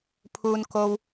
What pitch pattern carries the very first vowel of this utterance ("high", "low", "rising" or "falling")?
low